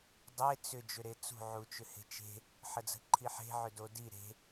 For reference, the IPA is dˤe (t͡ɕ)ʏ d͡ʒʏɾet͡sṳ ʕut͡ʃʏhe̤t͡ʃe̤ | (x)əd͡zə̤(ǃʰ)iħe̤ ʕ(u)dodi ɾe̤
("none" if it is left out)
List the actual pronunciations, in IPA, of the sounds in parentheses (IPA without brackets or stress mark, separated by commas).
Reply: t͡s, ħ, ǃʰ, ʏ